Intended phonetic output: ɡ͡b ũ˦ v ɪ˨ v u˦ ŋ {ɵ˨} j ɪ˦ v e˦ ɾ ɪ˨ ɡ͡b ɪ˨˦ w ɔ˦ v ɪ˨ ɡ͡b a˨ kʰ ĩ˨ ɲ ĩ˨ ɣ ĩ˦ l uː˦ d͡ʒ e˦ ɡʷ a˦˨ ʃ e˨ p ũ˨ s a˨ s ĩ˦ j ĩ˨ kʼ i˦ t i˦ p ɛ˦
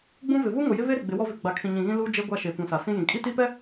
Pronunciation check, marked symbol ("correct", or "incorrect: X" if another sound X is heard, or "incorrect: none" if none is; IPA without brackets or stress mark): incorrect: o˨